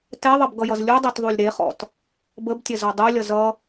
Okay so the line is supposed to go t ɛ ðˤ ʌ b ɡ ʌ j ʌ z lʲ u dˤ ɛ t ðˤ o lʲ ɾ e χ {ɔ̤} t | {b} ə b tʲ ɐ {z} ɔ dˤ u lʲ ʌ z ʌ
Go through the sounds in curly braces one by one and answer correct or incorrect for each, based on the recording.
incorrect: ɔ̰, correct, correct

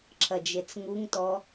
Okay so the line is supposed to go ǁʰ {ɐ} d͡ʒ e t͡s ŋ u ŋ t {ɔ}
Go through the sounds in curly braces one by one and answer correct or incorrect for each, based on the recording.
correct, correct

